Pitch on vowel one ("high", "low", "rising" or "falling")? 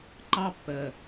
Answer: high